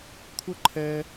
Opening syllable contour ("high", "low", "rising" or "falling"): high